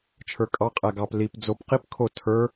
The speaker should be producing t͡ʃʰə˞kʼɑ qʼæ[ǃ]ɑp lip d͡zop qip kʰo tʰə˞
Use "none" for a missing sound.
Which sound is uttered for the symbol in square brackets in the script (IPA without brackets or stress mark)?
ɡ